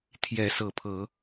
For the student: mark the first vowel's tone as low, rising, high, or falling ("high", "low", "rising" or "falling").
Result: rising